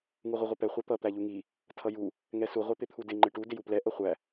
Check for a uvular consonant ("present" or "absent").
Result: present